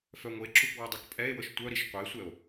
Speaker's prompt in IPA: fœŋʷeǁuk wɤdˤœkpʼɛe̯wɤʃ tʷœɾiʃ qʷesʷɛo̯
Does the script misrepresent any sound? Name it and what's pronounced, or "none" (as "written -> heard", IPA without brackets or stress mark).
none